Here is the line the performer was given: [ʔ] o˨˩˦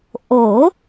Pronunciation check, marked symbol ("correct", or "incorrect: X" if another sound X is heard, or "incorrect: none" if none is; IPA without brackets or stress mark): correct